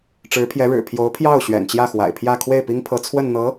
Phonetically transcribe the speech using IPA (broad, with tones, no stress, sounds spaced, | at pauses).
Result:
ʈ͡ʂ ɻ̩˧˥ pʰ j ɛ˧˥ ɻ ɻ̩˨˩ pʰ j o˧˥ ʊ̯ pʰ j ɑ˥˩ ʊ̯ ɕ ɥ ɛ̰˨˩ n t͡ɕ j ä˥˩ x w a̰˨˩ ɪ̯ pʰ j ä˥˧ kʰ w e˥˩ ɪ̯ p i˥ ŋ pʰ ɤ˧˥ t͡sʰ w ə˥˩ n n̪ ɤ˧˥